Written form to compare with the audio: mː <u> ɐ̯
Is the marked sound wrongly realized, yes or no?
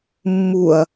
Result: no